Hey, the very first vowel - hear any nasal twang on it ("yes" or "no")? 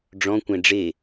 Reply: yes